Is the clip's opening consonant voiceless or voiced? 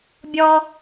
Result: voiced